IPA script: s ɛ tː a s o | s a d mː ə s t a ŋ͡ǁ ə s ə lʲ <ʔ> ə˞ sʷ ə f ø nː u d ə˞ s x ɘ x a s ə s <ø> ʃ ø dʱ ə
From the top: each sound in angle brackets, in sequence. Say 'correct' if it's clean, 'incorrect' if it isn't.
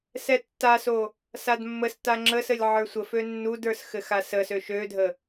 incorrect, correct

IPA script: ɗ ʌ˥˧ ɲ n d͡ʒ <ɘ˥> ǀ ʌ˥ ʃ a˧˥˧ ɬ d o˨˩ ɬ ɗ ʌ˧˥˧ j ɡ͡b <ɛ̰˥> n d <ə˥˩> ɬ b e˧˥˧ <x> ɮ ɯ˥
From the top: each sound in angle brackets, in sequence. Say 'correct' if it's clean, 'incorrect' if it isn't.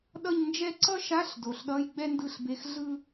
incorrect, incorrect, incorrect, correct

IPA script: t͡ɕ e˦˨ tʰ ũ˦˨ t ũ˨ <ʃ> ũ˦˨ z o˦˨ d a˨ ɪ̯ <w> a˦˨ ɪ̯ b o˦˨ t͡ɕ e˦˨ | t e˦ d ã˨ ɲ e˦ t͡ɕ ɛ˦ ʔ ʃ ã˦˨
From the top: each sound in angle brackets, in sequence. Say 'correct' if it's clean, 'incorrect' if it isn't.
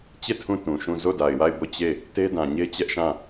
correct, correct

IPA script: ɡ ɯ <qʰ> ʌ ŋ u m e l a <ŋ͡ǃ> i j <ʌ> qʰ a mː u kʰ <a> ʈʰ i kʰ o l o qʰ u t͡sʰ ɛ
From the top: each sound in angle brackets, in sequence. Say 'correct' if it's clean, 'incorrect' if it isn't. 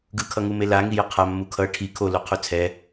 incorrect, incorrect, correct, incorrect

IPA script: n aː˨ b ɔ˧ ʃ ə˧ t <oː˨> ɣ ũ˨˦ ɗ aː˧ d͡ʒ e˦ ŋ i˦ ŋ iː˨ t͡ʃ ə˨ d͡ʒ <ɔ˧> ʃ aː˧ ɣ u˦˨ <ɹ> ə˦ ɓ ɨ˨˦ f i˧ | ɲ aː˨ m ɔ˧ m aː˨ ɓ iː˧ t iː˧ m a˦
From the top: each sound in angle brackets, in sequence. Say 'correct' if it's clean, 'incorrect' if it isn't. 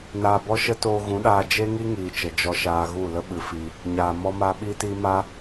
incorrect, correct, incorrect

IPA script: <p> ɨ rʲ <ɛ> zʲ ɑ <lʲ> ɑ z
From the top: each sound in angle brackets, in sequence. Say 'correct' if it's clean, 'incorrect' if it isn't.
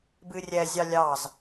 incorrect, correct, correct

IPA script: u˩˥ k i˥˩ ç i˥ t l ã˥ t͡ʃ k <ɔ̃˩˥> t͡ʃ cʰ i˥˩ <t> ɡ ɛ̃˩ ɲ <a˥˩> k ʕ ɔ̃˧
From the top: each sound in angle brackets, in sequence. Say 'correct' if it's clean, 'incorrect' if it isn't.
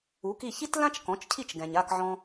correct, incorrect, correct

